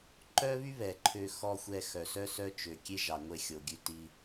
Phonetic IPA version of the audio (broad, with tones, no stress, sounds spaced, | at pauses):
ǃ œ˦ β y˦ β ɛ˨ ǃʰ ø˧ x ɔ˧ xʷ ɛ˧ x œ˨ s œ˦ s œ˦ t͡ʃ ø˨ kʲ e˦ ʒ ɑ˨ ŋʷ e˧ xʲ o˨ ɡʲ ʉ˧ t i˧